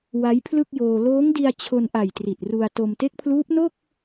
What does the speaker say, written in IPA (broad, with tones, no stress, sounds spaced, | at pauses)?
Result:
w a˦˥ j pʰ l ɯ˥˩ k̚ j oː˧ l oː˦˥ ŋ d i˧ a̯ t͡ɕʰ o˧ n ʔ a˨˩ j t r i˨˩ t̚ r u˧ a̯ t o˧ m t e˦˥ k̚ pʰ l uː˦˥ p̚ n o˥˩ k̚